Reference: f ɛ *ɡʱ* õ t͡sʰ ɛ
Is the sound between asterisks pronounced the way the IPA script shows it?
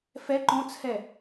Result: no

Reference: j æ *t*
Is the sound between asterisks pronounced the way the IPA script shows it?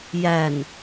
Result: no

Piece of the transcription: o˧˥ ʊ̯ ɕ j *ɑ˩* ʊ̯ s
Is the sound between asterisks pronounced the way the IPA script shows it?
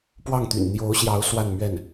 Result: no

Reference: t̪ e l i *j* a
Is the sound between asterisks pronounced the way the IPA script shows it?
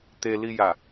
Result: yes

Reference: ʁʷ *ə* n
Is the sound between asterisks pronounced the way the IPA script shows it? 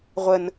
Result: yes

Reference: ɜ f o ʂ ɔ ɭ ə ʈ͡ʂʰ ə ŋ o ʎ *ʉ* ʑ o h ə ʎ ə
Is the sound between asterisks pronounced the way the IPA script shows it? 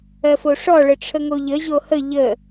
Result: no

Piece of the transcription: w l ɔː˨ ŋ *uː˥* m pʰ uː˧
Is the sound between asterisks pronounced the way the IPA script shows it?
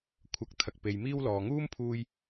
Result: yes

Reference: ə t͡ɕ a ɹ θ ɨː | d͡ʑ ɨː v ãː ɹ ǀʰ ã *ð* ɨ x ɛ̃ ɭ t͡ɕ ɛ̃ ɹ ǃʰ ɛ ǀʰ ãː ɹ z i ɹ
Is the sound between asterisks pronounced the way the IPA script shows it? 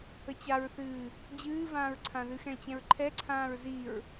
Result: yes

